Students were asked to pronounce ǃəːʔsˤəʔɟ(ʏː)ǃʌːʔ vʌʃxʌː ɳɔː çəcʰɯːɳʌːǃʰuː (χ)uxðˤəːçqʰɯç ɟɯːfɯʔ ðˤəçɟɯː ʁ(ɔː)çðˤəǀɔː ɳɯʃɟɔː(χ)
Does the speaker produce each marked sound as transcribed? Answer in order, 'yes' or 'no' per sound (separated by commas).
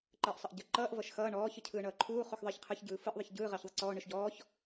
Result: no, yes, no, no